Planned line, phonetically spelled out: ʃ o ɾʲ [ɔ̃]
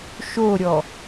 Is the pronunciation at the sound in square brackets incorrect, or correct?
incorrect